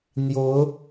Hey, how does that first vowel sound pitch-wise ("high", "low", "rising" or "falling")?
rising